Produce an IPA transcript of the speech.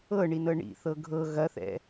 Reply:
ɤɳinɤ ɳḭθɤ ɡʱɤ ɣɐθɛ̰

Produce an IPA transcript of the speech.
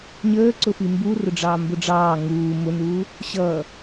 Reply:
ɲəːǀʊ fimbu rʊɖ͡ʐɑːmbʊɖ͡ʐɑː ŋuː mʊnuː | ɕʌː

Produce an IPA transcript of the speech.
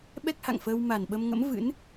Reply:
ɓɛ˦˥k̚ha̰˧˨ŋfəː˧w ma˨˩nɓə˧mŋə̰˧˥m vɨ̰˧˥n

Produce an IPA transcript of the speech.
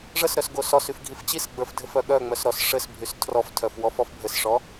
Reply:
ʐəsɾœs ɡosɔsyf ɡʱift͡ɕisɡ͡bə˞f dʱɘfœɠœŋ͡mœs ɾɔs ʂɘs bʱystʰrɔftʰœf wɔfɔfbʱɘsʂɔ

